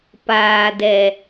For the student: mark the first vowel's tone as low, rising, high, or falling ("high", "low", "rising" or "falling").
low